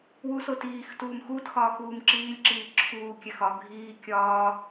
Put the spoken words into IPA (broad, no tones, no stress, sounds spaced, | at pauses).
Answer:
w u s o t iː x t uː m x uː t x ɒː x uː m ǁ iː lʲ ǁ iː ǁʰ uː kʲ æ x ɒ ɡʱ iː kʲ ɒː